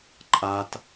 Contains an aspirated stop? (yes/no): no